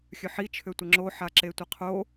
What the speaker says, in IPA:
xʲœħi t͡ʃʰøtʷəŋ͡ǁo ħaǁetʷeqʰo

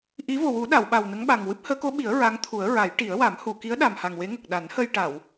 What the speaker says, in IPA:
ʔi˧˥ vo˨˩wu˨˩˦ɗa˨˩˨w ɓa˨˩wnə˧˥ŋɓa˨˩ŋ wɨ˦˥p̚həː˧˥ko˧˥ɓi˨˩˦ə̯ ɹa˧˥ŋt̪ʰu˨˩˦ə̯ɹa˨˩˦j ʈi˨˩˦ə̯wa˨˩˦m hu˨˩˨ki˧˥ə̯ ɗa˨˩mha˨˩ŋwe˧˥ ŋə˨˩k̚ɗa˨˩˦nhə˧j ʈa˨˩˨w

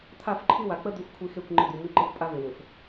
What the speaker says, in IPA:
t̪ʰa˦˨fǃʰi˦wa˨ k͡pə˦ d̪u˦xʷkʷʰi˦ xe˦˨kʷŋ͡ǃɪ˦˨d̪u˨ mi˦ ǃɪ˦xʷpʼa˦vɪ˨wɪ˨f

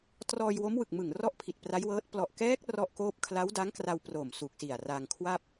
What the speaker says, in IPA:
trɔː˧jwo˦˥mwɯ˨˩k̚mɯ˨˩ŋ rɔ˥˩ʔpʰi˨˩t̚pra˦˥jwɤː˦˥t̚ plɔ˨˩ʔkɛː˦˥k̚ rɔ˥˩ʔkoː˥˩p̚ kʰla˦˥wda˦˥ŋkra˧w pro˨˩m su˨˩k̚si˨˩a̯ra˧ŋkʰwa˥˩p̚

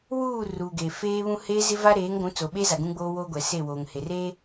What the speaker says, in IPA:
wuː˦˨ ruː˨ɡe˨feː˦βũ˦ heː˦zɪ˦va˦ ɾeː˨˦ŋɡʷũ˨˦ t͡so˨ɓeː˦za˨ ɡũ˦ɡ͡boː˦woː˦ɡʷɛ˨ se˦˨woː˨ŋhe˨reː˦

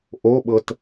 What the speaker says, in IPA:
ʔoɓɤt

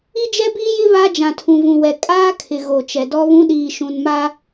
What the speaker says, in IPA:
i˦d͡ʒɛ˦biː˦jɪ˦ βa˦ d͡ʒã˨tʰũ˨vũ˨wɛ˨ kʼaː˦kʰɪ˨ ɣo˨t͡ʃɛ˨dɔ˦βũ˦ ɗiː˨ʃũ˨nma˦

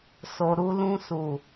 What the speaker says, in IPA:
so˨ɾu˧lũ˧su˨

